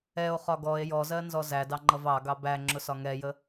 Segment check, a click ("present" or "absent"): present